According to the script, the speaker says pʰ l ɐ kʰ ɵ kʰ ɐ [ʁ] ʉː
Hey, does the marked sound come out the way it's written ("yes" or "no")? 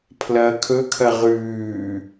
yes